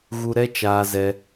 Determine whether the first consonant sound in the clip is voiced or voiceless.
voiced